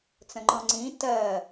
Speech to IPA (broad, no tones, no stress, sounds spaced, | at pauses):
t͡s ə̃ ŋ͡ǃ ɔ̃ ŋ͡ǀ ĩ t ɜ